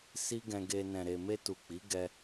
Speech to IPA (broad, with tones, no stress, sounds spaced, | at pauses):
s i˦ ɡ ɛ̃˧ ɡ e˧ n ɛ̃˨ ɾ e˨ m e˧ t u˨ k͡p i˨˦ ɡ ɛ˧